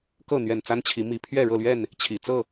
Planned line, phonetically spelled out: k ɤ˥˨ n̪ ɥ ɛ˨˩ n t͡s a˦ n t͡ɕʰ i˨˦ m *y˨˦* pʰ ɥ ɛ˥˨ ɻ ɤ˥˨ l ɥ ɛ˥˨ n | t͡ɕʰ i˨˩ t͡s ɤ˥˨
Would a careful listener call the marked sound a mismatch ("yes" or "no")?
yes